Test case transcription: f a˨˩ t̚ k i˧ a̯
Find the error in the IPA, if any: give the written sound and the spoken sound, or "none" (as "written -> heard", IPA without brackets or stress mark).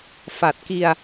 none